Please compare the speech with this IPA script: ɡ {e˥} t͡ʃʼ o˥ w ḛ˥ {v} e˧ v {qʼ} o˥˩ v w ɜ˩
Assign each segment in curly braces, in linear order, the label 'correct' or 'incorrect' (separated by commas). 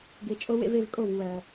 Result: incorrect, correct, incorrect